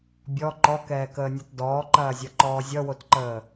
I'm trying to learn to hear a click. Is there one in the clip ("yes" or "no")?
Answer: yes